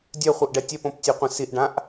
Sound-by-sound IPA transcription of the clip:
dʲ œ χʷ œ ʔ ɖ ɛ tʲ ɛ p õ p tʲ ø qʷ ə̃ s i ʔ ɖ ã ʔ

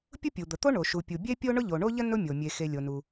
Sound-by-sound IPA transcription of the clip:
pʲ ʊ˥ pʲ u˩ d̪ ə˩ t̪ o˥ ɳ o˩ ʃ u˩ pʲ u˩ bʲ e˥ pʲ o˥ ɳ ʊ˥ ʎ o˩ ɳ o˥ ʎ ə˥ n ʊ˥ mʲ o˩ mʲ e˩ x e˩ lʲ o˩ n u˩

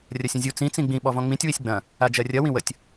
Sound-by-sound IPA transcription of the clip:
rʲ ɐ sʲ ɐ̃ zʲ u t͡s ĩ t͡s ĩ ɡ͡b ĩ ɓ ɔ v ɔ̃ ŋ͡m ĩ tʲ w i sʲ ɡ͡b ɐ̃ | a d͡ʒ ɜ rʲ ɐ w ĩ w ə tʲ

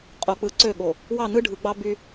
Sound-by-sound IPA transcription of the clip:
qʼ o˨ k͡p ɯ˨ ǀ ø˦˨ ɠ o˨ | w ɑ˦˨ n ɯ˦ ɖʱ ɯ˨ ɡ͡b ɑ˦ b y˦

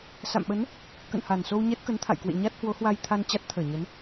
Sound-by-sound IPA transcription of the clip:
s a̰˧˨ m ɓ ə˨˦ n | k ə̰˧˨ n h a˨˩ n s o˧ w ɲ ɛ˦˥ t̚ k ə˨˦ n t̪ʰ a̰˧˨ j k w ḛ˧˨ ɲ a˦˥ t̚ h w o˨˦ h w a˧ j t̪ʰ a˧ n t͡ɕ a˦˥ t̚ t̪ʰ əː˧˩ ɲ ə˨˦ n

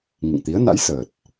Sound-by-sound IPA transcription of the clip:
ŋ ḭ˧˨ ŋ t̪ i˨˦ ə̯ n a̰˧˥ j s əː˨˩ t̚

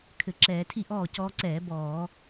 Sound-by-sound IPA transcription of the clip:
kʰ ɘ˧˩˧ ǁ ɛː˧˩˧ tʰ i˥˨ ʔ ɔː˥˨ c ɔː˧ ǀ ɛː˧˩˧ b ɔː˧˩˧

